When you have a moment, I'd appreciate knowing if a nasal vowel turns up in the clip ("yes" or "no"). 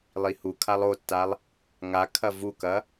no